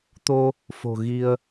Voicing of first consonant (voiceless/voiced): voiceless